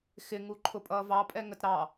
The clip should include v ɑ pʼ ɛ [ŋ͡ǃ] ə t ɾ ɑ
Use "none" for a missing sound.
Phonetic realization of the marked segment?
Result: ŋ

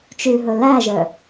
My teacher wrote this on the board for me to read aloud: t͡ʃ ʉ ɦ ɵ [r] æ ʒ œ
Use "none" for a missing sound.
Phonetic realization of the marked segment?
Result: l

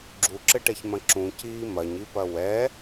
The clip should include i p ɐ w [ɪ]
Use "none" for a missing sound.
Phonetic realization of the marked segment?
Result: ɛ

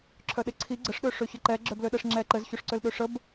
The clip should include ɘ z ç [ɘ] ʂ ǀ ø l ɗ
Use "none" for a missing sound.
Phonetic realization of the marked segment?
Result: ø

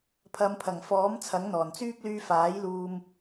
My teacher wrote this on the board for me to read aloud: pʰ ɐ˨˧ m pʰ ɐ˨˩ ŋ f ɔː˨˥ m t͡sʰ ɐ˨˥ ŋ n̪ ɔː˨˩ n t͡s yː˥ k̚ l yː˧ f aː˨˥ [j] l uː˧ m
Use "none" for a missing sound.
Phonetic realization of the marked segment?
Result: j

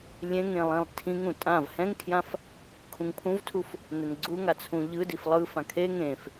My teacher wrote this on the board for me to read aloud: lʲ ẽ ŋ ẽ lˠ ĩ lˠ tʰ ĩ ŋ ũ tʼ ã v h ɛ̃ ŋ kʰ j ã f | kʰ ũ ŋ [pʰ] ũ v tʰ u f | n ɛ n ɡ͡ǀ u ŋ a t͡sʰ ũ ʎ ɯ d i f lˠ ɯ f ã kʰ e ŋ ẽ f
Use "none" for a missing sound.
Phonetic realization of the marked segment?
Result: pʰ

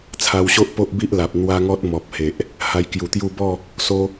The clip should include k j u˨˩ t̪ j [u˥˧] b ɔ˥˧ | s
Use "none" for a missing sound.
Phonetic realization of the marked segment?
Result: u˥˧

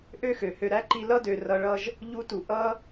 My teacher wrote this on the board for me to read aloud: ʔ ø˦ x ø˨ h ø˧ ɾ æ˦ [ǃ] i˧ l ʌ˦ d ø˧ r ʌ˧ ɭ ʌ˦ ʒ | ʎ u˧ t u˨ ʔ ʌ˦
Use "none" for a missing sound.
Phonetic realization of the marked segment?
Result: ǃ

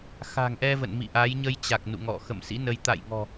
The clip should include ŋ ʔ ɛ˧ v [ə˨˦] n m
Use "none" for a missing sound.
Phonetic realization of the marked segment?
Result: ə̰˧˨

